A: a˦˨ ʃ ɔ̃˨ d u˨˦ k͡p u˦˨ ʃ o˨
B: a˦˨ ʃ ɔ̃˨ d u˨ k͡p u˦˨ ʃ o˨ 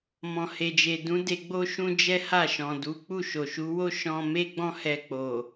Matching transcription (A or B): A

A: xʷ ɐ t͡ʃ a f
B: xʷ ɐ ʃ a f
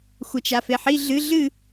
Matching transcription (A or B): A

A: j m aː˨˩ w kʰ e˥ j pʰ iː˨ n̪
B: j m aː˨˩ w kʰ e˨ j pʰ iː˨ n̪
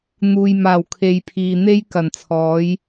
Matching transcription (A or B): B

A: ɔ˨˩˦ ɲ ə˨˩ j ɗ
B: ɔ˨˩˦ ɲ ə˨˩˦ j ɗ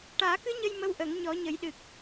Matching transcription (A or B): B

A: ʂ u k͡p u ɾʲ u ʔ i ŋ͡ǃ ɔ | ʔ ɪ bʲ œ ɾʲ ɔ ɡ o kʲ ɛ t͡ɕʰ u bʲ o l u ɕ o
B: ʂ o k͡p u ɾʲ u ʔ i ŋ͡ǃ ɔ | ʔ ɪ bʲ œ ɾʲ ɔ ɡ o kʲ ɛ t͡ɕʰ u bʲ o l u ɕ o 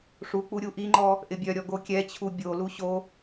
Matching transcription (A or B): A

